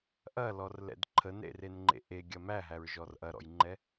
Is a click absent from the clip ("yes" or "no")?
no